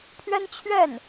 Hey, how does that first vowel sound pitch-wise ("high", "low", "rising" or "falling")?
high